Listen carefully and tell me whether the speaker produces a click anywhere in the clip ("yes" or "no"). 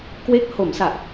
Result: no